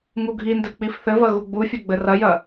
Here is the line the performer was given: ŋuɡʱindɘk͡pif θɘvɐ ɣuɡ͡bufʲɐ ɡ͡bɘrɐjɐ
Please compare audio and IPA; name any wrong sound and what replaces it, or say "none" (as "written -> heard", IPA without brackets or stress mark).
none